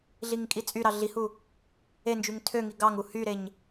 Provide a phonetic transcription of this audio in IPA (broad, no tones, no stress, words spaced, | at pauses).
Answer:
ɮiŋkʼit͡sʼyɾɑ ɮihu | end͡ʒyŋ tʰøŋi ɡɑŋu hyɾeɲ